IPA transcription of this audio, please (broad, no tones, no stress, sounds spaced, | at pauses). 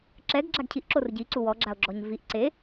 ǁ ɛ ɡ ɡ͡ǁ a ɡ cʰ i ʔ ǁ o r ɟ i ǀ u w ɔ ɡ͡ǁ a o̯ ɡ͡ǁ ɔ ɲ v i ʔ ǀ e